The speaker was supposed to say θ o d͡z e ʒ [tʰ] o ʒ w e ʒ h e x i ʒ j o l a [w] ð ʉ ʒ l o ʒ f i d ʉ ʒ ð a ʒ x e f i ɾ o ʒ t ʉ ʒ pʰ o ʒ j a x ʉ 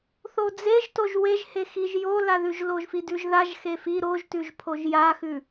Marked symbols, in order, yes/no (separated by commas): no, no